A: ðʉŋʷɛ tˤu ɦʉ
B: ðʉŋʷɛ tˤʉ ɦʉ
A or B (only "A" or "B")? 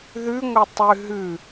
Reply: B